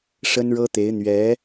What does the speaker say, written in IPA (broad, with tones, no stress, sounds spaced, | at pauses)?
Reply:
ʂ ə˥ n ɻ ɤ˥ t̪ e˧˥ ɪ̯ n̪ ɥ ɛ˧˥